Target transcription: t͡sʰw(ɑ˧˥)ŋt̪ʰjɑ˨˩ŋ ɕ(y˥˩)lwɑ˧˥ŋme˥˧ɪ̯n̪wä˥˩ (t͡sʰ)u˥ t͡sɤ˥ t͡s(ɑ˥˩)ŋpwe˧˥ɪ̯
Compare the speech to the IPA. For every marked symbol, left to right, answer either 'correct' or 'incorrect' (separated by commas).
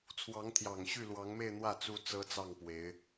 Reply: correct, correct, incorrect, correct